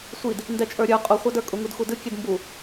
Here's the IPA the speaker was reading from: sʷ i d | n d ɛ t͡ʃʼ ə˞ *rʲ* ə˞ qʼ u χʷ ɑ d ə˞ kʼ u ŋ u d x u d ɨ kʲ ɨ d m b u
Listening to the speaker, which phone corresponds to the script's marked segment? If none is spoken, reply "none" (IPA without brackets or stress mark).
ɾʲ